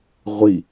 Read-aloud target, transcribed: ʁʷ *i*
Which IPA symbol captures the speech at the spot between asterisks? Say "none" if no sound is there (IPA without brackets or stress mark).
i